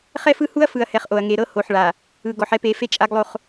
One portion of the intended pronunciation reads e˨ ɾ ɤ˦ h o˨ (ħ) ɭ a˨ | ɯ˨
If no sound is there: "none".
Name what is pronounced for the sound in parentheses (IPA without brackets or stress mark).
ħ